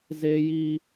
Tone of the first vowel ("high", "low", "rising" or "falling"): high